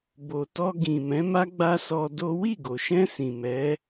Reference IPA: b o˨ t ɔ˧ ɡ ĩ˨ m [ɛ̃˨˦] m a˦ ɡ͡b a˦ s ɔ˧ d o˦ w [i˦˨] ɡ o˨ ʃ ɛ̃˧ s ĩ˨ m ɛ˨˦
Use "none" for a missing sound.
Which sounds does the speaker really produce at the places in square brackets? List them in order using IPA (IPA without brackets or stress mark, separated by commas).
ɛ̃˨˦, i˦˨